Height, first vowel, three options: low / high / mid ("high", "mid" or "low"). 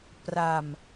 low